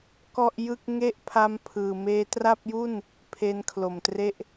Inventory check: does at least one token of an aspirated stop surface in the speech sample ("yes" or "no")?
yes